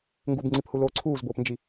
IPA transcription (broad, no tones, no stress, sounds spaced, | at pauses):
ŋ ɡ u b ŋ͡ǀ i p h u l oː ǀʰ uː z b oː p n d͡ʒ i